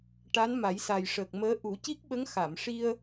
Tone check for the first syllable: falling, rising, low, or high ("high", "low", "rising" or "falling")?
rising